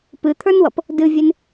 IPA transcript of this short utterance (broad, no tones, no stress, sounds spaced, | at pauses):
p ɨ t̪ʰ ə˞ n w ʌ p | d ɨ vʲ e n